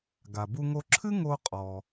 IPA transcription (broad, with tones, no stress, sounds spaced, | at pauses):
ɡ a˩ b u˧ ŋ o˧ ǁʰ ɨ˥ ŋ o˧ qʼ ɔ˩